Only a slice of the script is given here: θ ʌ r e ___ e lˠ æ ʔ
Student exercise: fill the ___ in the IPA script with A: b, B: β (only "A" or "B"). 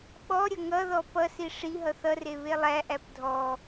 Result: B